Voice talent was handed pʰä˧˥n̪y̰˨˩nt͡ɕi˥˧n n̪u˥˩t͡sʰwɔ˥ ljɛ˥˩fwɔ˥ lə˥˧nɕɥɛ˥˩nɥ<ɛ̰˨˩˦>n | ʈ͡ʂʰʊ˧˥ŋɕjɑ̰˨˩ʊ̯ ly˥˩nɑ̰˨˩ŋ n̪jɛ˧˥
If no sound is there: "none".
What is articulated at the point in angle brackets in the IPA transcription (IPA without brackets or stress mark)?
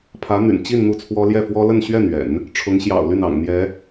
ɛ̰˨˩˦